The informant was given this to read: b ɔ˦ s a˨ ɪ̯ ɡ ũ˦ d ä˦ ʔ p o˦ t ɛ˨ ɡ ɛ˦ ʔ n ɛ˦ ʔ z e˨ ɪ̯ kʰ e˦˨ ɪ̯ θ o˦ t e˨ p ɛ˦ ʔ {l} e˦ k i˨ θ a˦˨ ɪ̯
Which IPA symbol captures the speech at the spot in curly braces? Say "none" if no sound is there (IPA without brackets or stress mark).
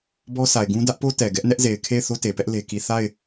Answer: l